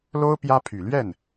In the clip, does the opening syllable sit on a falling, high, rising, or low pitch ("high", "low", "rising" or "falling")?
high